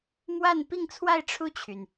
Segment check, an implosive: absent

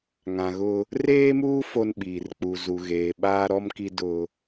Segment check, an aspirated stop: absent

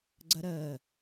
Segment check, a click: present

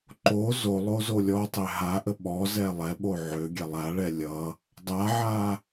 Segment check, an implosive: present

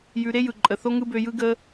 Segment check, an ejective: present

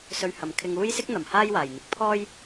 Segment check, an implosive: absent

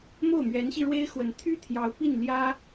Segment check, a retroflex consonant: present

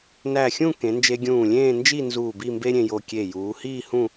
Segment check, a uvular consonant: absent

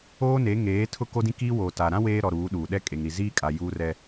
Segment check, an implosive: present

